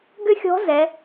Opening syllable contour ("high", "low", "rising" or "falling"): high